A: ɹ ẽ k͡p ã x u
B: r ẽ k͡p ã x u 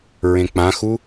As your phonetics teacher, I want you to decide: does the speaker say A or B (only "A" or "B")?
A